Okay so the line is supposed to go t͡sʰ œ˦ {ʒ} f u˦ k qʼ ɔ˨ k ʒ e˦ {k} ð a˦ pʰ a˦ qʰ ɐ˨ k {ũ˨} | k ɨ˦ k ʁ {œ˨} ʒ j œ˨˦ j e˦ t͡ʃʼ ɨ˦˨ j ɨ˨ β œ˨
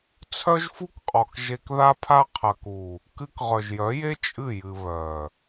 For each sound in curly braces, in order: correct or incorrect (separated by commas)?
correct, correct, incorrect, correct